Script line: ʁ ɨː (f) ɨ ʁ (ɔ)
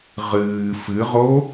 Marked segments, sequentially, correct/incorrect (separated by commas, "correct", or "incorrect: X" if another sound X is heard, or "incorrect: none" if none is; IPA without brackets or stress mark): correct, incorrect: o